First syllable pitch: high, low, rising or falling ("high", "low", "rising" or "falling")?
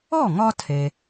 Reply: falling